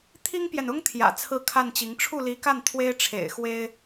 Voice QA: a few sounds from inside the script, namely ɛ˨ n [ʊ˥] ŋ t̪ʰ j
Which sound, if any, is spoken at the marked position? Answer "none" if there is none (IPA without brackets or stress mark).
ʊ˥